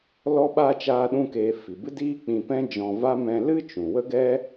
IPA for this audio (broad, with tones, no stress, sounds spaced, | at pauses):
l ɔ˦ ɓ a˦ t͡ʃ aː˦ ɗ ũ˦ k eː˧ f i˨ b ɨ˦ d iː˦ k͡p ĩ˧ p ɛ̃˦ d͡ʒ ɔ̃˧ v a˦ m ɛ̃˧ l ɨ˦ t͡ʃ ũ˨ w ə˦ ɡ ɛ˦